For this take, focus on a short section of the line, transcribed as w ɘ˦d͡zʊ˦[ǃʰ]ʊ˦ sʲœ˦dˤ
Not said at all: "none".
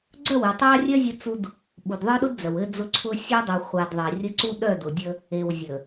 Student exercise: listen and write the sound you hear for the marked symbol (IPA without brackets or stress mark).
ǀʰ